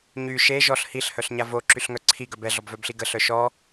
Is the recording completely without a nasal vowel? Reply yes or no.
yes